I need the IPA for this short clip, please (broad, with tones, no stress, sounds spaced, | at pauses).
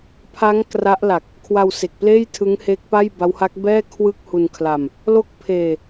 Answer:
pʰ a˦˥ ŋ k r a˦˥ ʔ l a˨˩ k̚ | kʰ w a˧ w s e˨˩ k̚ p l eː˥˩ j tʰ ɯ˦˥ ŋ h e˦˥ k̚ p a˥˩ j b a˦˥ w h a˦˥ k̚ b ɛː˥˩ kʰ w ɯ˥˩ k̚ h u˧ n kʰ l a˧ m | l o˦˥ k̚ pʰ eː˧